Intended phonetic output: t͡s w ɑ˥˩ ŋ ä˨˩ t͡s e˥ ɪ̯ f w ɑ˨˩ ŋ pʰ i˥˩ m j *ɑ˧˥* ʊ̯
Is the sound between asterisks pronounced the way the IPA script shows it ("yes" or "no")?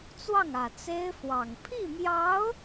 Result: yes